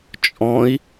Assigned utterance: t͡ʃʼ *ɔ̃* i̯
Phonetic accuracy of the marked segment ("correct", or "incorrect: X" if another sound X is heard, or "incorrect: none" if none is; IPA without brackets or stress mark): correct